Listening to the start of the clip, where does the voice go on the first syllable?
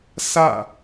falling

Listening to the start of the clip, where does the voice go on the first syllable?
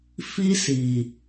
high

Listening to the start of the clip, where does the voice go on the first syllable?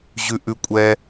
low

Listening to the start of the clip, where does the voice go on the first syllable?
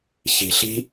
low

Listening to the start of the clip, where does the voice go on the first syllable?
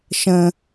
high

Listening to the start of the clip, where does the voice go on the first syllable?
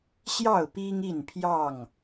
falling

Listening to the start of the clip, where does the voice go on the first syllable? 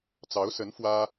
rising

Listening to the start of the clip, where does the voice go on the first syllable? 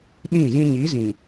falling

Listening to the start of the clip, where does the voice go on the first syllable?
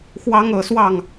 high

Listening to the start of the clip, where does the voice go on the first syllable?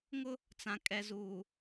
high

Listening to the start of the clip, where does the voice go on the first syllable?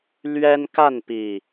high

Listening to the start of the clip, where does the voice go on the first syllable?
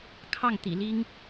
falling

